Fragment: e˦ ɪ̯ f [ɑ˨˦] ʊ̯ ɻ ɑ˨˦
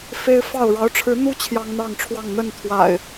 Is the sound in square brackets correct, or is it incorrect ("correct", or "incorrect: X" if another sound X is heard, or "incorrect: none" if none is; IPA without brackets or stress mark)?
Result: incorrect: ɑ˥˨